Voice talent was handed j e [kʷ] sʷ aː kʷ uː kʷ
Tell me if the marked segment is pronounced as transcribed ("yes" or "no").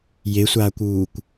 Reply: no